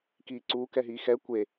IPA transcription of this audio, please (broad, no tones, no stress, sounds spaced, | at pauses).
k iː ǀ uː k ɛ ɦ iː x ɛ kʷ e